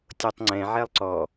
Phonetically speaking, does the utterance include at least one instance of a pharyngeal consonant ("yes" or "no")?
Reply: yes